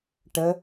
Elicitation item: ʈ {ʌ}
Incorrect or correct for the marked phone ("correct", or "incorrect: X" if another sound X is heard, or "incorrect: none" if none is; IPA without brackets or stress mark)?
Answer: incorrect: ə